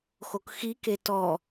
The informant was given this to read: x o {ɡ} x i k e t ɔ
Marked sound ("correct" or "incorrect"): incorrect